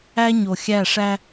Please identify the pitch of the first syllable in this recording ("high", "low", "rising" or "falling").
high